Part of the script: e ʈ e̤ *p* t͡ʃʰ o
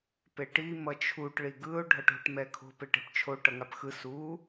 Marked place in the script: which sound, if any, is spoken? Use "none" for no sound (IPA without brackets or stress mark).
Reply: p